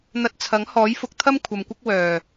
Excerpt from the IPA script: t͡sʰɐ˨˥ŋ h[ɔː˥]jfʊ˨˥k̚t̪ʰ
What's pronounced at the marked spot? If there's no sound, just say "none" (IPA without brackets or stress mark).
ɔː˨˥